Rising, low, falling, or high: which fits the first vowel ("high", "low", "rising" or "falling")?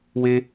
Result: high